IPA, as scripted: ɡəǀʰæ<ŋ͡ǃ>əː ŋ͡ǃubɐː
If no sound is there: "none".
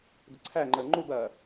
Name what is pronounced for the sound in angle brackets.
ŋ͡ǃ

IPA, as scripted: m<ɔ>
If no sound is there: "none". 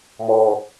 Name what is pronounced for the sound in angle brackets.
ɔ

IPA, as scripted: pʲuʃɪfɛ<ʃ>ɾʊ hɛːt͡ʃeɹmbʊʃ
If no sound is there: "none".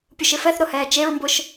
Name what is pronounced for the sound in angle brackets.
θ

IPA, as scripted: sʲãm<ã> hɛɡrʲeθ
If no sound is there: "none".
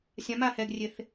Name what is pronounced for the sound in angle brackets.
a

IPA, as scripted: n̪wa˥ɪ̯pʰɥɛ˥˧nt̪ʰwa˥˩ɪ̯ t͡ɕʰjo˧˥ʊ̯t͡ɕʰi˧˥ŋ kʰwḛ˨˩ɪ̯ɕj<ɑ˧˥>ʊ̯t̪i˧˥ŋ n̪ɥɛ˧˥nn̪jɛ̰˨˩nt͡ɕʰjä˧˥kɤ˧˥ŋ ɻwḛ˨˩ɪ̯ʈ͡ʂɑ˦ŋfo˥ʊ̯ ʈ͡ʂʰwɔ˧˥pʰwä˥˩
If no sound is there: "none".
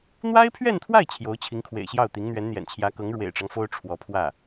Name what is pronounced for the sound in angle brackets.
ɑ˥˩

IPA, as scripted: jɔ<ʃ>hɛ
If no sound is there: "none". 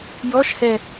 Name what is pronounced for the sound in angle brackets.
ʃ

